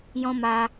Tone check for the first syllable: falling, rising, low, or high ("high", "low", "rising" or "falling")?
high